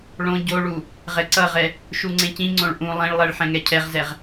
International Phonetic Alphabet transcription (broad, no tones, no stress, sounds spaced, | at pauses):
ɭ õ ɟ o ɭ u | ʁ ɛ ǀ ʌ ʁ ɛ | ʃ u ŋ͡ǀ ẽ c ĩ ŋ͡ǀ õ ɭ ʔ ũ lˠ ẽ ɭ lˠ ɛ ɭ ħ ɛ̃ ŋ ɛ cʰ ɛ ʁ z ɛ ʁ